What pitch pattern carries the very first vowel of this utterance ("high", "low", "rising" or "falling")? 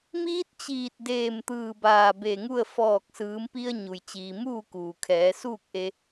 rising